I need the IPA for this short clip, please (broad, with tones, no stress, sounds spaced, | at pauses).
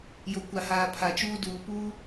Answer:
j o˨ kʷ a˨ h aː˨ pʰ a˨ t͡ʃ uː˦ d uː˨ p uː˦